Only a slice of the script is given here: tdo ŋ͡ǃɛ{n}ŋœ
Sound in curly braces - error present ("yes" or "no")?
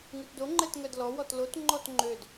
yes